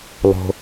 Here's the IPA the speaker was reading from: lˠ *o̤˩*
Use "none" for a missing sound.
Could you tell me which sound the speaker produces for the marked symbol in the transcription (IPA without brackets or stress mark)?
o̤˩